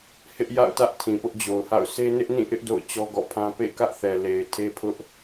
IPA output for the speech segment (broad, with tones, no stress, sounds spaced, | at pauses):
h ɪ˦ ʔ j a̰˦˨ ʊ̯ t ä˦ ʔ tʰ ĩ˨ p ʊ˦ ʔ d͡ʑ o˨ ʊ̯ h a̰˦˨ ʊ̯ s e˦ n ɪ˦ ʔ n ĩ˦˨ ʔ ɪ˦ ʔ d o̰˦˨ ʊ̯ t͡ɕ ɔ˦ ɡ ɔ̰˦˨ pʰ ã˦ p ḛ˦˨ k ä˦ ʔ θ ɛ˨ l e˨ ɪ̯ tʰ e˦ pʰ ʊ˦ ʔ